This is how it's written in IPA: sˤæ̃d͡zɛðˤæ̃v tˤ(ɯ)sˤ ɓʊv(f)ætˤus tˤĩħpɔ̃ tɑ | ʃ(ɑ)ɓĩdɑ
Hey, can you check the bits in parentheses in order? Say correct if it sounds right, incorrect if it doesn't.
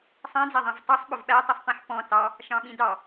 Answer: incorrect: u, incorrect: ɓ, incorrect: ɑ̃

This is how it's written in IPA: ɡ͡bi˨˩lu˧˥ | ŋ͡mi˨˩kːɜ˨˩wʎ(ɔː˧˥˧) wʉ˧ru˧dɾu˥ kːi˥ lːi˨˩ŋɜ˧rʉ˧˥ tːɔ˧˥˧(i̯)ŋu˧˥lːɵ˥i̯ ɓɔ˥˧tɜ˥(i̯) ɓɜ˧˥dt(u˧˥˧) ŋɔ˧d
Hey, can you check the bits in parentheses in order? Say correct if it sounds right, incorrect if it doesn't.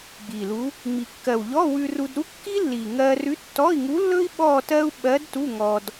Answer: incorrect: ɔ˧˥˧, correct, incorrect: u̯, correct

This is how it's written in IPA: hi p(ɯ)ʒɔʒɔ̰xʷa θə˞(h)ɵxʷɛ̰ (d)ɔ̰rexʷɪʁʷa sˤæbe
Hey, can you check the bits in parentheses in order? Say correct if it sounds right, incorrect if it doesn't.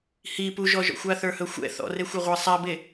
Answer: incorrect: u, correct, incorrect: θ

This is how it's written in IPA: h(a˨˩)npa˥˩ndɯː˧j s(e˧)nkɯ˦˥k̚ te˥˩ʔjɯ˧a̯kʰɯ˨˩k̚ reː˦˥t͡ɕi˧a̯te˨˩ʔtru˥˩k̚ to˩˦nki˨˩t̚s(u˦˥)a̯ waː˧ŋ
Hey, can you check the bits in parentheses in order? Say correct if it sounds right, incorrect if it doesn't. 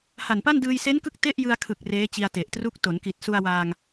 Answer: correct, incorrect: e˦˥, incorrect: u˧

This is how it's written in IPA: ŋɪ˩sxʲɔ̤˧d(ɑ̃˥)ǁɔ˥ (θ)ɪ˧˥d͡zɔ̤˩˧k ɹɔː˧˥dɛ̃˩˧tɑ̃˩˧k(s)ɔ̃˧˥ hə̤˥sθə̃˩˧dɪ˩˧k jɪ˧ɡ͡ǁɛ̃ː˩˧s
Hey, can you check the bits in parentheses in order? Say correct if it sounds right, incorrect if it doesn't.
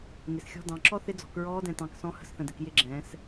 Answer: incorrect: ɑ̃˩˧, correct, correct

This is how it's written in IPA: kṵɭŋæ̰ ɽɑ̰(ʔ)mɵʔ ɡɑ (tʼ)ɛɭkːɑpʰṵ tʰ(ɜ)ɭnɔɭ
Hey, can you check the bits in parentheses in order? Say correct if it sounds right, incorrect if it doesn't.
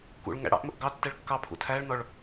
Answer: correct, incorrect: tː, incorrect: æ

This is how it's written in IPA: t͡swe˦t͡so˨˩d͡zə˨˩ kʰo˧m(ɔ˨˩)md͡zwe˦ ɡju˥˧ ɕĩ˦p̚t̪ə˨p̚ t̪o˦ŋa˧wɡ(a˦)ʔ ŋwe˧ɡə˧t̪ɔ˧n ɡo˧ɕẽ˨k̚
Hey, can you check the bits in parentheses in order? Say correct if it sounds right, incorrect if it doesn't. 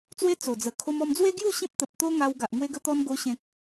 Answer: incorrect: ɔ˧, incorrect: a˨

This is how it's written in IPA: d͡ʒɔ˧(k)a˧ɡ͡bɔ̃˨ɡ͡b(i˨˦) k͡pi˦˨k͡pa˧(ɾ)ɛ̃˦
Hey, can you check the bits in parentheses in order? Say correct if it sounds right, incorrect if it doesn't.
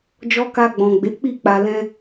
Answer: correct, incorrect: e˨˦, incorrect: l

